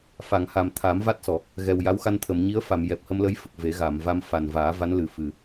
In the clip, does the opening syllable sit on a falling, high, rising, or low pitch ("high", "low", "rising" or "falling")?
low